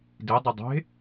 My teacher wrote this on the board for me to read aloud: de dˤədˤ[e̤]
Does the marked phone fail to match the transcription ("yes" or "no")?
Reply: no